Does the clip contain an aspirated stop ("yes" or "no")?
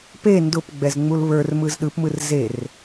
no